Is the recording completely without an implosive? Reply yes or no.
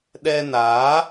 no